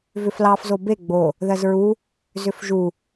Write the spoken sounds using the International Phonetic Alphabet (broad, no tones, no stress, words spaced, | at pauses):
vʏflɑf zobe ɡ͡bo | ðɜzɹu | zʏfʒu